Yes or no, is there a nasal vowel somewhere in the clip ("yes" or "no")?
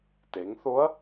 no